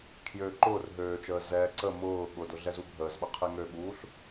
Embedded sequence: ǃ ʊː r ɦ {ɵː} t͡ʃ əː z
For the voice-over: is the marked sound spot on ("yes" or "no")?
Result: no